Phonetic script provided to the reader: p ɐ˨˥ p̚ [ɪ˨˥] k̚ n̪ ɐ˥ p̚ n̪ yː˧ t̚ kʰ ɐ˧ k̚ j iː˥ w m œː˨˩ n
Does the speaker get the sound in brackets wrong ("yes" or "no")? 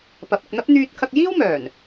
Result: yes